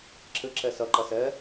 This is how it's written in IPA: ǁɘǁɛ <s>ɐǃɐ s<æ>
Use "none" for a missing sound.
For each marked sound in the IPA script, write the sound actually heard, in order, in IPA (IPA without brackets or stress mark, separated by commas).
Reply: s, ɛ